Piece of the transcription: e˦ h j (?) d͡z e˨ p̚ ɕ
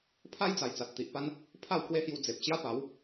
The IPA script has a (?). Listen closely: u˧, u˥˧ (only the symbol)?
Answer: u˧